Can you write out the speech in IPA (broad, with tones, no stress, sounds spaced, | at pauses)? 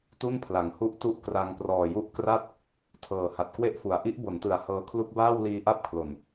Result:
t u˥˩ n pʰ l a˩˦ ŋ h u˥˩ ʔ t u˥˩ ʔ k r a˧ ŋ p r ɔː˨˩ j u˦˥ ʔ k r a˥˩ t̚ | tʰ ɤː˨˩ h a˨˩ t̚ k w e˥˩ ʔ f u˩˦ a̯ ʔ i˦˥ ʔ b o˩˦ n t ɯ˩˦ a̯ h ɤː˧ kʰ l u˦˥ k̚ b aː˥˩ w l iː˧ ʔ a˥˩ p̚ kʰ l o˨˩ n